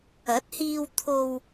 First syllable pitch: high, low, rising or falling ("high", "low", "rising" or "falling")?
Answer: rising